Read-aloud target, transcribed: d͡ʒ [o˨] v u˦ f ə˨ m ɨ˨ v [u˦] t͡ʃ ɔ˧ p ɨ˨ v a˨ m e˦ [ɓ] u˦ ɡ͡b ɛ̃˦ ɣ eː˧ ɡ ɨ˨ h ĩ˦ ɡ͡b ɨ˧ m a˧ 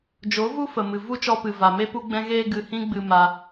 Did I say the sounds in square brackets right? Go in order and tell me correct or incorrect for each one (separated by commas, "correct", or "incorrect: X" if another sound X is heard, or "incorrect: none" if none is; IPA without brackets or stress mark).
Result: incorrect: o˨˦, correct, incorrect: p